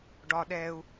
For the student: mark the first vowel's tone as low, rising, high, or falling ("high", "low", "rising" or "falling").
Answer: high